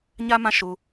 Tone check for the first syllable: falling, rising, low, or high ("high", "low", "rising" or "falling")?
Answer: high